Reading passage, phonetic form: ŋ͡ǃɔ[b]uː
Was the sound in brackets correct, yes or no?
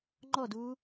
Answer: no